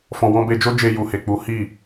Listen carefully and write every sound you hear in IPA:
fɔ̃˨wɔ̃˧be˧d͡ʒo˦ d͡ʒe˧ju˨he˨ k͡pu˨˦hi˦˨

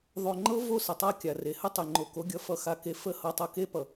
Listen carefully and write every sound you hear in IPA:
ðˤo˨ ŋ͡ǃɤ˦ vo˦˨sə˨tˤa˦ kʲa˨re˨hə˦ tˤe˨ŋ͡ǃo˨ko˨˦ ɡʲʌ˨fʌ˨xa˨ke˨ fə˦˨ hɤ˨tˤɤ˨ke˦ pʌ˨

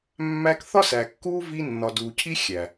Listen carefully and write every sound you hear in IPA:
mːæ˦k θɒ˦sæ˨kːuː˦ vi˦ nːɒ˨duː˨cʰi˦ xʲæ˨

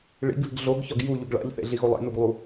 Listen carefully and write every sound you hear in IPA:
ɭḭɡβi̤ɡ ɮoɡçɒɡ juʎuɡ ɭa̰ʎθḛɮi ɣolˠḛnuɡlˠu

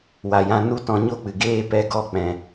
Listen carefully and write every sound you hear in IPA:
wa˨jã˧nu˦ tɔ̃˧ɲo˦k͡pɨ˨ ɡeː˧pɛ˧ɡɔ˧ k͡pɛ̃˧

